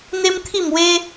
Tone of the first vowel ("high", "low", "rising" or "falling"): high